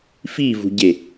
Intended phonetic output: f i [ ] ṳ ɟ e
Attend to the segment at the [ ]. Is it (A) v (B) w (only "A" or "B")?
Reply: A